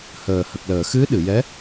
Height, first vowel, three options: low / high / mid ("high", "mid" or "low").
mid